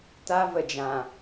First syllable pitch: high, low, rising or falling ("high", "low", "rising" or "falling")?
high